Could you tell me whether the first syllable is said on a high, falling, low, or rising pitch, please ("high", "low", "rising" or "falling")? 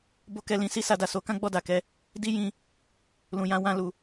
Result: high